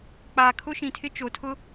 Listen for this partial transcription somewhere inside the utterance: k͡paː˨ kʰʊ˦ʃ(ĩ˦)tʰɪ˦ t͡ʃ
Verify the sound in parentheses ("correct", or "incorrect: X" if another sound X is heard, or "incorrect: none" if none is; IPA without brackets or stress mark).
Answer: incorrect: ĩ˨